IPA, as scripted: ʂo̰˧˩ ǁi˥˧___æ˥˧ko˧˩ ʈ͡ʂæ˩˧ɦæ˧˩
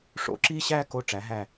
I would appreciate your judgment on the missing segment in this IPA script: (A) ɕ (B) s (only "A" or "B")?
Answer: A